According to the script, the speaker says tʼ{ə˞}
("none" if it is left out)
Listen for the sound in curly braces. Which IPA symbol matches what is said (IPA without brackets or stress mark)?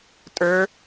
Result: ə˞